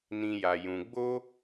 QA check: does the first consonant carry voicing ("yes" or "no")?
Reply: yes